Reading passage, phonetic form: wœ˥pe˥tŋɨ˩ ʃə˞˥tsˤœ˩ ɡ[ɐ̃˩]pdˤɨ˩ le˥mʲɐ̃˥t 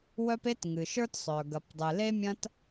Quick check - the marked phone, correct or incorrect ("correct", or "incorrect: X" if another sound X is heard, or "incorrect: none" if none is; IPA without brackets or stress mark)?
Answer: incorrect: ɐ˩